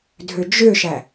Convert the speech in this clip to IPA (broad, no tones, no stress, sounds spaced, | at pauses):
dʱ ø d͡ʒ ø ʃ æ